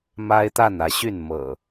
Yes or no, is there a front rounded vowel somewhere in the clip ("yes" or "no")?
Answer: yes